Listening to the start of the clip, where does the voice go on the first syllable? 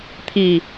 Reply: falling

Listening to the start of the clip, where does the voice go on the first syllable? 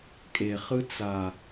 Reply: low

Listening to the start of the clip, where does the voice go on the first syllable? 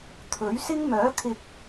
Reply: rising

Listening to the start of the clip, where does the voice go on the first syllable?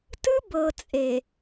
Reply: high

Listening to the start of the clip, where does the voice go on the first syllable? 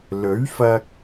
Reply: rising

